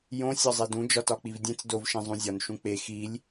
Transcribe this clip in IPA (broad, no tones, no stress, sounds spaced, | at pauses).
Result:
j õ sʲ ɒ zˤ e d ũ d͡ʒ ɒ t ɒ k͡p i v dʲ ẽ t͡s d o v ʃ ẽ zˤ ũ zʲ ɒ n ʃ ũ k͡p e x i lʲ